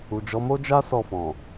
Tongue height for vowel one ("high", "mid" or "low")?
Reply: high